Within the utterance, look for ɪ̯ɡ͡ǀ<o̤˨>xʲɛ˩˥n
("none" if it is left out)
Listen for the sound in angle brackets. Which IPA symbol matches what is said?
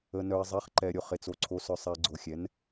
o˨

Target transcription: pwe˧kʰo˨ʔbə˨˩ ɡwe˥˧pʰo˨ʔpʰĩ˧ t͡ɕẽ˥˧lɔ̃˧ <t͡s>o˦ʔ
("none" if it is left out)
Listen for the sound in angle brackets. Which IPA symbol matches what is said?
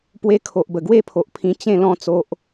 t͡s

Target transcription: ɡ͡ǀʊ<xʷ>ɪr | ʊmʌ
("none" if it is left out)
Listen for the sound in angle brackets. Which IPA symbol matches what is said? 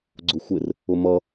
xʷ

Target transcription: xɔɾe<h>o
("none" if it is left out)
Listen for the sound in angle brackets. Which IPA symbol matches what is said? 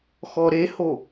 h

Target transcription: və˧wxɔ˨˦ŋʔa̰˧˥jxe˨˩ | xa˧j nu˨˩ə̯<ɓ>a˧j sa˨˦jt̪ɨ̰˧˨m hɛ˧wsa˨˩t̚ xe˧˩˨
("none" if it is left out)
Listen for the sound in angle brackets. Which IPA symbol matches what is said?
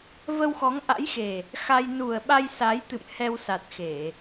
ɓ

